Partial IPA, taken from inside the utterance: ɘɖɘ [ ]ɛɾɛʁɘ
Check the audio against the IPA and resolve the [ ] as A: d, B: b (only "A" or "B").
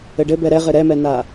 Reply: B